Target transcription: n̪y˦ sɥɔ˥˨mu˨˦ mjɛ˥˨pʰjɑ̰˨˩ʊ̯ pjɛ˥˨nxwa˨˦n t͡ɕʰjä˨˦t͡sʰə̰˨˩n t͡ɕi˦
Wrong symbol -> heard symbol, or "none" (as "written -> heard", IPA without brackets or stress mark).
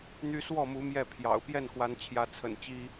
ɥ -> w